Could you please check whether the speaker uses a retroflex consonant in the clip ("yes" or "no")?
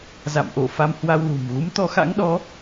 no